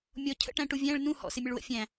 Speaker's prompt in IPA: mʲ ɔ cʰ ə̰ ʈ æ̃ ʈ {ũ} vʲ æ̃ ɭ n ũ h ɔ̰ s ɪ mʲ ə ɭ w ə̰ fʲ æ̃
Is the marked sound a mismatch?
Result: yes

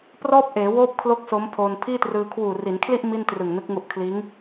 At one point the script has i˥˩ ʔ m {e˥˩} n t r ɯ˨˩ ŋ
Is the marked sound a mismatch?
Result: yes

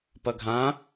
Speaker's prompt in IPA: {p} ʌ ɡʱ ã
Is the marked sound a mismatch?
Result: no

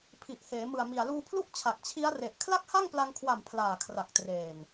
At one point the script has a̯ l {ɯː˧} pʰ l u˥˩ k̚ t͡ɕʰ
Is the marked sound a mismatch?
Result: yes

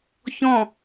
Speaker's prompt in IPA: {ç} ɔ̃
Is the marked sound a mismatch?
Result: no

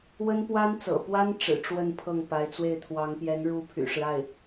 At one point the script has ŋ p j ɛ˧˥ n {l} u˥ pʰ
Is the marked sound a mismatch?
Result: yes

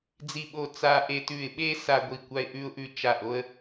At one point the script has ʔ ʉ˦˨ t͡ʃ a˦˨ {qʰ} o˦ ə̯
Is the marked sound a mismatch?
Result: yes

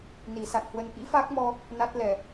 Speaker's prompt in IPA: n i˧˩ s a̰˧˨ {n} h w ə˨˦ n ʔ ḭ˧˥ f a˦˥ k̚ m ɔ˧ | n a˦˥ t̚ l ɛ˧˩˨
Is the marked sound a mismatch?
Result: no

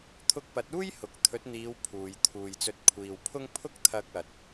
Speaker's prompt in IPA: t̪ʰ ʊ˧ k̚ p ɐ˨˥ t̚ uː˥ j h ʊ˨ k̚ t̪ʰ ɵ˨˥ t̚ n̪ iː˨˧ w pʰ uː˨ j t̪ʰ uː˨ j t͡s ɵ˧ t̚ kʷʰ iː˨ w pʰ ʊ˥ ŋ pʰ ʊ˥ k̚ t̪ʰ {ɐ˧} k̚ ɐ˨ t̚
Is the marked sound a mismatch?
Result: no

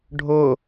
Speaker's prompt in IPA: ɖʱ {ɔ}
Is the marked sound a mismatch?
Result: yes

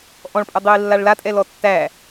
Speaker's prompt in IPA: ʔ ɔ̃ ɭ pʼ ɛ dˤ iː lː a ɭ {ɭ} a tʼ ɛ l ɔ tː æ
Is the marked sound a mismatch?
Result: yes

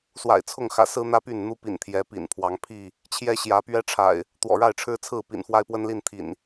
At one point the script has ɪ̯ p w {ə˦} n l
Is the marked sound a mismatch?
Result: no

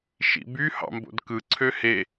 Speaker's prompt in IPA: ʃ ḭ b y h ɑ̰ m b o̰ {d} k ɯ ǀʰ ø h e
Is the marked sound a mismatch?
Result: no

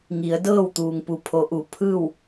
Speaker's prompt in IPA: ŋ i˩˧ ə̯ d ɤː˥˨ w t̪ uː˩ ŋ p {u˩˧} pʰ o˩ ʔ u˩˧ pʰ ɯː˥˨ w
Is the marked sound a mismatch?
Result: no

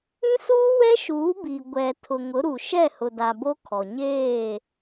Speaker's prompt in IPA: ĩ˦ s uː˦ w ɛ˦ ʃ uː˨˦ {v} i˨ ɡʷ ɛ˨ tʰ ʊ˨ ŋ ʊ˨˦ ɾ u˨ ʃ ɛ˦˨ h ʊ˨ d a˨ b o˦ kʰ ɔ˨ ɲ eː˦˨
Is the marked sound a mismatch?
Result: yes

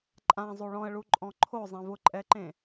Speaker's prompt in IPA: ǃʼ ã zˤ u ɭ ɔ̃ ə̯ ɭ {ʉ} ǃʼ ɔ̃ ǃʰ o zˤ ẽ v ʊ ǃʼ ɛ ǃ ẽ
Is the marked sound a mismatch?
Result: yes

